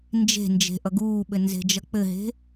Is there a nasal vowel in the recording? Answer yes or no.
no